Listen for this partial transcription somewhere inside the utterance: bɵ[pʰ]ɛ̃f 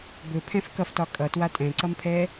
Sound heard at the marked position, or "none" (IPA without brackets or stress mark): pʰ